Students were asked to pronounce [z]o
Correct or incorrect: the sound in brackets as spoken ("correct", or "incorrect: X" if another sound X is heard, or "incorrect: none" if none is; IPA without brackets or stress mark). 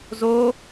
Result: correct